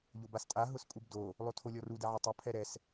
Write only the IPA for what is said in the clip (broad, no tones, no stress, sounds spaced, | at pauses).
ʎ o b a s tʼ a ɦ ʊ s kʼ u b d o | lˠ o tʰ o lʲ ɔ r u d ɛ ʕ a tˤ o pʰ ɛ ɾ ɛ s